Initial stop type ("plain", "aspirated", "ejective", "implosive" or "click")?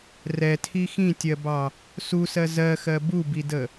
aspirated